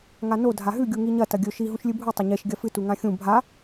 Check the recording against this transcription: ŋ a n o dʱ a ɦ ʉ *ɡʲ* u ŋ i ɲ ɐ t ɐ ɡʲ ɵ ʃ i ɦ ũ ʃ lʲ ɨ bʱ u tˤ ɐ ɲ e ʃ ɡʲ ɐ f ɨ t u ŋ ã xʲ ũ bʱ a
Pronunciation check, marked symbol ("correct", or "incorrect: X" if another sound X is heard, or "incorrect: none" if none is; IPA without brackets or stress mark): correct